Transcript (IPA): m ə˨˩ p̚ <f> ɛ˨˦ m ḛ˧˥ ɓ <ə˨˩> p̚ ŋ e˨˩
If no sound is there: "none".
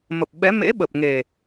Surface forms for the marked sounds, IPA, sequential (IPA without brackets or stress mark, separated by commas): ɓ, ə˨˩